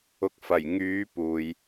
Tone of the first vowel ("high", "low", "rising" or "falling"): low